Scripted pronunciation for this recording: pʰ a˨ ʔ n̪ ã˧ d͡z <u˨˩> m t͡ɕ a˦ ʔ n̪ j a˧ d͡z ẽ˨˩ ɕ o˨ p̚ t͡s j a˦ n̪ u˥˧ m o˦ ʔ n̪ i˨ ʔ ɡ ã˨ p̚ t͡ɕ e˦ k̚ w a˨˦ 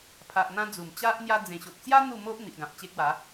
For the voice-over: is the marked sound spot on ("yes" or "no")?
yes